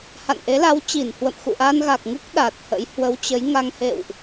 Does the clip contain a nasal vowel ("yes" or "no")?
no